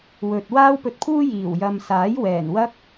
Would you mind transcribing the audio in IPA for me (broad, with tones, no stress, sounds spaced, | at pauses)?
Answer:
w ɵ˨ t̚ w aː˥ w p ɵ˧ t̚ pʰ uː˥ j iː˨˩ w j ɐ˨ m s aː˨˥ j w ɛː˨˩ n w ɐ˥ k̚